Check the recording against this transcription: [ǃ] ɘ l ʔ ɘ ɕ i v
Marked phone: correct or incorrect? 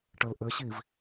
incorrect: ʈ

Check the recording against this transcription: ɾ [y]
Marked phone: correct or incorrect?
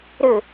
incorrect: ʏ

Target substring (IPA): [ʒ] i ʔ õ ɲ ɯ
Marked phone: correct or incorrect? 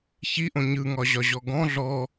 incorrect: ç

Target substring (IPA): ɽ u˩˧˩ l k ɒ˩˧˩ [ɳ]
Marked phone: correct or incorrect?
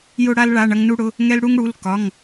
incorrect: ŋ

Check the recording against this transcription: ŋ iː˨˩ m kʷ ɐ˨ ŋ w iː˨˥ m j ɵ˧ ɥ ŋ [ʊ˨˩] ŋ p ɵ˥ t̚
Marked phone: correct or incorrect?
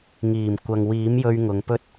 incorrect: ʊ˨˧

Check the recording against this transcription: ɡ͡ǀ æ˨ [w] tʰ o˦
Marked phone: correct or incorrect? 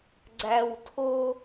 correct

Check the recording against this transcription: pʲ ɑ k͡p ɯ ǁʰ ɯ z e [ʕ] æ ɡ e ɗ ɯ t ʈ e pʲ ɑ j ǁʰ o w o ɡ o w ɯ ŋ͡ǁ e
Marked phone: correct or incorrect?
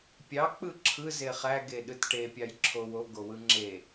incorrect: χ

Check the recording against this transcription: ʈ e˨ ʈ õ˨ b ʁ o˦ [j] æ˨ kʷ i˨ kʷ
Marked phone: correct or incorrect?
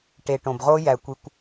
correct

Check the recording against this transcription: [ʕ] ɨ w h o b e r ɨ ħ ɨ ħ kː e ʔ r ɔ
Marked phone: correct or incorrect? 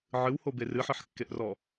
correct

